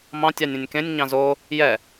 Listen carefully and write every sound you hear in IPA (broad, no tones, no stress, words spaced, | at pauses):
mɑ̃ tʲɑnʲɛ̃nʲkẽnʲ ɲɑ̃zo | jɛ